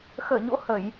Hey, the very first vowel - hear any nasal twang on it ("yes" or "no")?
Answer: no